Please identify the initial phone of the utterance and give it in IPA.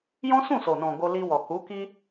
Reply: j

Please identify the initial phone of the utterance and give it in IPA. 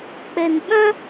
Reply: k͡p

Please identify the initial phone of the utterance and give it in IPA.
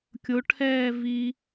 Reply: kʲ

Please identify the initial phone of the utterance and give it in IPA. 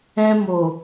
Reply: ɛ̃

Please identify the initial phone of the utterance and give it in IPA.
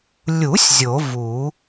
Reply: lʲ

